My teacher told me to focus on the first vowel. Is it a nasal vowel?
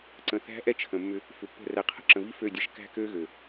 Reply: yes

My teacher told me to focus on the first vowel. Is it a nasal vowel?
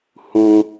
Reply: yes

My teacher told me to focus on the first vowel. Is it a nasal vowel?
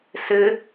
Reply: no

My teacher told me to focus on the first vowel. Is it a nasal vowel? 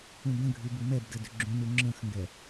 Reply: yes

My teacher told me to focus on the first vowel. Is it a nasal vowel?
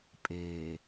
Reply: no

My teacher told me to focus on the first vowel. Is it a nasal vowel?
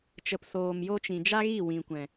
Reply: no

